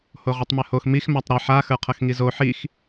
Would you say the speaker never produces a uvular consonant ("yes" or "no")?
no